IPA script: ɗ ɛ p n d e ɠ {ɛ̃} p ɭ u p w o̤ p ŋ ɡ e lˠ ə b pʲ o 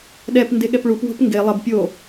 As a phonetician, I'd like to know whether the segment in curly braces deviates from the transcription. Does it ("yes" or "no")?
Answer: yes